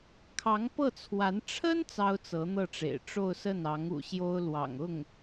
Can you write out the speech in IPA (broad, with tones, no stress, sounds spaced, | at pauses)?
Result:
kʰ ɑ˧˥ ŋ p ɤ˥˩ t͡sʰ w a˧˥ n ʈ͡ʂʰ ə˥ n t͡s ɑ˥ ʊ̯ t͡s ɤ˧˥ n̪ ɤ˥˩ ʈ͡ʂ ḛ˨˩ ɪ̯ ʈ͡ʂ o˥˧ ʊ̯ s ə˥˩ n ɑ˧˥ ŋ ṵ˨˩ ɕ j o˥ ʊ̯ l w ɑ̰˨˩ ŋ ʊ˥˩ ŋ